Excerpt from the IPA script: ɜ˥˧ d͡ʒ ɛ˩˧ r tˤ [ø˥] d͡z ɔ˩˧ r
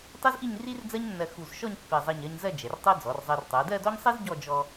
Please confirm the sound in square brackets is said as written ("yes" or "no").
no